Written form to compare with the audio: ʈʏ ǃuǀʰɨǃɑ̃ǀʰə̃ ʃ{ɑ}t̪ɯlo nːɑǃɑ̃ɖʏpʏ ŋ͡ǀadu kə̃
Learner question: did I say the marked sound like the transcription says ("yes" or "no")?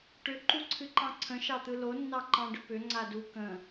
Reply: yes